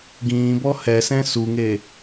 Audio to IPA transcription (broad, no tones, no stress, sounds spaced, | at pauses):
ɡ ĩː b ɔ h ɛ s ɛ̃ s u ŋ e